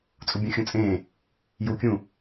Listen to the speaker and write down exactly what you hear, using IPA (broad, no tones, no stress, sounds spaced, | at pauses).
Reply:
t͡sʼ u bʲ ũ xʲ ũ t͡sʼ ẽ | j u kʲ ũ